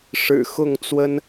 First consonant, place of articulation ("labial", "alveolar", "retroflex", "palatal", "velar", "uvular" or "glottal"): retroflex